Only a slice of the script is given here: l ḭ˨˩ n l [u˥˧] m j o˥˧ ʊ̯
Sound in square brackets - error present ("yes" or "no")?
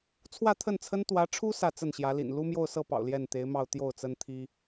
yes